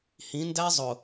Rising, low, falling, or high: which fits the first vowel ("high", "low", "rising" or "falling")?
rising